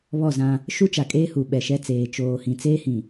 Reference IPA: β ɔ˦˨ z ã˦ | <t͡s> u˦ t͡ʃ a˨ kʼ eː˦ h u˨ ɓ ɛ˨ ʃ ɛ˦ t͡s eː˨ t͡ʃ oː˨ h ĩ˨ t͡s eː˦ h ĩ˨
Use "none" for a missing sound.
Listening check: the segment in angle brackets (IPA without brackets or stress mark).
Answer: ʃ